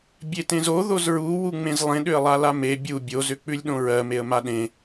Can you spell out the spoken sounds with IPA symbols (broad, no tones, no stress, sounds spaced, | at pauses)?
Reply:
bʲ e t ẽ z o ð o z ɹ u w u ŋ͡m ẽ z lˠ ẽ ɗ ʏ ə̯ lˠ a l a m e bʲ u bʲ o z ʏ k͡p ʉ lʲ ɗ õ ɹ ɜ m e ə̯ m a ɗ ẽ